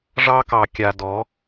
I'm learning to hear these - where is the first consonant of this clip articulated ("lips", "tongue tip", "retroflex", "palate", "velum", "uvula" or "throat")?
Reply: retroflex